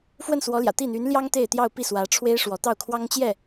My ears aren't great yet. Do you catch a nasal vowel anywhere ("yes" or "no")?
no